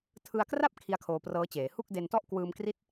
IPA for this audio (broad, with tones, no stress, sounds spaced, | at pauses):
tʰ ɯ˧ a̯ k r a˥˩ p̚ kʰ i˦˥ a̯ kʰ oː˧ p r ɤː˦˥ t͡ɕ eː˩˦ h u˥˩ k̚ d e˧ n t ɔ˥˩ ʔ k w ɯː˧ m k r i˦˥ t̚